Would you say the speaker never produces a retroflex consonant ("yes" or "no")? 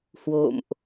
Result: yes